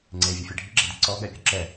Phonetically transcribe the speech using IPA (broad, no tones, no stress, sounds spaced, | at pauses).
ŋ͡ǀ e vʲ ɯ fʲ e ɖʱ i ɡ͡ǁ ɛ d i ǀ ɔ ɠ ɛ pʲ o ǁ ɛ